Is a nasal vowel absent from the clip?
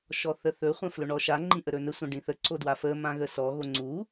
no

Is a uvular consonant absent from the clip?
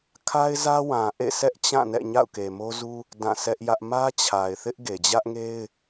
yes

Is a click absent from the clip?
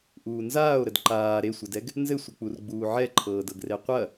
no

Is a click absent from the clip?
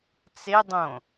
yes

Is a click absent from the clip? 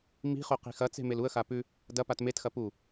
yes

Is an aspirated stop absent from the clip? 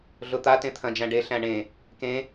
no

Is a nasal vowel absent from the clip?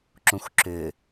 no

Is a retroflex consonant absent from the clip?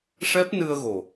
no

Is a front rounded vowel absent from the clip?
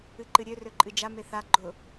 no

